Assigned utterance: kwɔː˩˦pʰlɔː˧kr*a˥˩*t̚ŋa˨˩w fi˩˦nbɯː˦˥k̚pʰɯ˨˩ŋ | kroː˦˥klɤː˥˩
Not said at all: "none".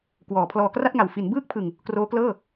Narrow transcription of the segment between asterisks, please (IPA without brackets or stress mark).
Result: a˥˩